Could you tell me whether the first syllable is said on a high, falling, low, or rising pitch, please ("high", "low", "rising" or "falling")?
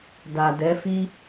low